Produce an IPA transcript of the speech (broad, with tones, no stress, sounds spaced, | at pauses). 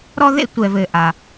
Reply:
ɾ ɔ˥ ð ḛ˥ tʷ ɛ˩ v ɘ˩ ʔ a˩